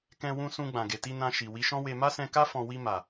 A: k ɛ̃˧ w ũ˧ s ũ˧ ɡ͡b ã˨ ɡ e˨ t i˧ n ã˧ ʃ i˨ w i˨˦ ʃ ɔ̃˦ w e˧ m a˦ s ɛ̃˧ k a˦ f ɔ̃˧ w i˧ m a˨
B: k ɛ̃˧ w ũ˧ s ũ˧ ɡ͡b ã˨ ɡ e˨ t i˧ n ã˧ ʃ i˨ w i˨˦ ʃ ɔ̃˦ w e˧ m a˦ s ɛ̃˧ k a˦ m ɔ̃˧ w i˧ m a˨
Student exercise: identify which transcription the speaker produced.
A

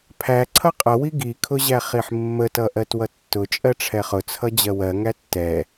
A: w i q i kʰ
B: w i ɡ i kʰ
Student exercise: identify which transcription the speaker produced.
B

